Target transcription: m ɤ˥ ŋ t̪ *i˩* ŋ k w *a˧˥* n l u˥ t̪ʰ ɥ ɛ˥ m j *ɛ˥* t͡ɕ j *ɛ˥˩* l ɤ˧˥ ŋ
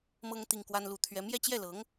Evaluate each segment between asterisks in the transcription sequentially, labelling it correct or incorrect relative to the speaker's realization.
incorrect: i˥, incorrect: a˥, correct, correct

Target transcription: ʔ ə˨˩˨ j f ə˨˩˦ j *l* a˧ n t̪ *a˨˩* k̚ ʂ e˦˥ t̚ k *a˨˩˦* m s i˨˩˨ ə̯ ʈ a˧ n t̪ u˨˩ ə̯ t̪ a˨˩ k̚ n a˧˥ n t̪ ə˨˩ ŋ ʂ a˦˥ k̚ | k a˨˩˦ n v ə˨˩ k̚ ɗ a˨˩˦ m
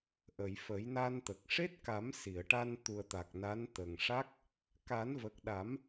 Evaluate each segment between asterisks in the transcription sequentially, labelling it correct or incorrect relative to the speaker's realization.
incorrect: n, incorrect: ə˨˩, correct

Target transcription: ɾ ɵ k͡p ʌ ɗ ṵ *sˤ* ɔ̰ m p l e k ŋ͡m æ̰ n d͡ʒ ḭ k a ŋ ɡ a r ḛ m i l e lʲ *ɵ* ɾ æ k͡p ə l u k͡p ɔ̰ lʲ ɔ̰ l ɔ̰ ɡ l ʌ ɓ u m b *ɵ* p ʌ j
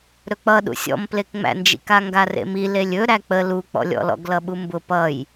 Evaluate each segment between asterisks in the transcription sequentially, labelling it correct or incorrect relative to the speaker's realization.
incorrect: sʲ, correct, incorrect: ʊ

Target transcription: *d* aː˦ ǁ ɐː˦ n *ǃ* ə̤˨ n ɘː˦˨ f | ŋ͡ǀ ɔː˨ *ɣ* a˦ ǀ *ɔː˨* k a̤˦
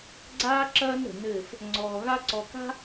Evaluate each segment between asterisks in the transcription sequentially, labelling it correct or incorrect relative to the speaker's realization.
incorrect: ɡ͡ǀ, incorrect: ɾ, correct, incorrect: ɔ˨

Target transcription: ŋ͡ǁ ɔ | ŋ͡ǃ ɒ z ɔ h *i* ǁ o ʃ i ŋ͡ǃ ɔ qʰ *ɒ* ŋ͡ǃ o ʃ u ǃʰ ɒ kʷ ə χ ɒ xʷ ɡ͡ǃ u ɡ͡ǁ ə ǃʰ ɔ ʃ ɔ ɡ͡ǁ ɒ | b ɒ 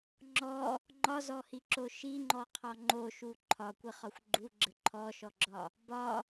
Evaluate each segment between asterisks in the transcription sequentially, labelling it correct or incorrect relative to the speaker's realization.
correct, correct

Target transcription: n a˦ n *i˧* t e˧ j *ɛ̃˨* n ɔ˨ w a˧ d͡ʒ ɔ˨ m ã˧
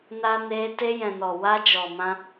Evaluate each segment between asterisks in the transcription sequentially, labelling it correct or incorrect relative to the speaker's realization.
incorrect: e˧, correct

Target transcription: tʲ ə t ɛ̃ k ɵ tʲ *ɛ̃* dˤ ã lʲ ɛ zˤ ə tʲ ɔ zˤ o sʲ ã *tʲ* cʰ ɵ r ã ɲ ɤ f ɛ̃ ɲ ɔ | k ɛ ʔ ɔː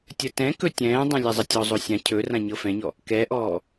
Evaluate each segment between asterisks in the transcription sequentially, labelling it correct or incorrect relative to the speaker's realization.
incorrect: ɛ̃ː, incorrect: none

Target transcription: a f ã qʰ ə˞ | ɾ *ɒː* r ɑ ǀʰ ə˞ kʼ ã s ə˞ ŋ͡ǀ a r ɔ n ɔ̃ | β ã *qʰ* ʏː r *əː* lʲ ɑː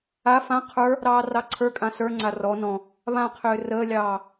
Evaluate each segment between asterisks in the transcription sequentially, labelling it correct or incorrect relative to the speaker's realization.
incorrect: ɑː, correct, correct

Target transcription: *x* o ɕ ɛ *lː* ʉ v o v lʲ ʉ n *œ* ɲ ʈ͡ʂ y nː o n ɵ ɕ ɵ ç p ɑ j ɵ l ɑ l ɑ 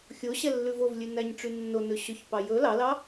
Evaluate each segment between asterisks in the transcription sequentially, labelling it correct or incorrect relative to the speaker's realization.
incorrect: xʲ, correct, incorrect: æ

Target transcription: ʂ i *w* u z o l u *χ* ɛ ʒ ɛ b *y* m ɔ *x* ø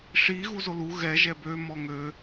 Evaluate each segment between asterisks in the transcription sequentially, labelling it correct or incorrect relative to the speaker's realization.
incorrect: ɣ, incorrect: ɣ, incorrect: ø, incorrect: ŋ

